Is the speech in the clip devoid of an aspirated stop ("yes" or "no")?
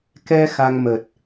yes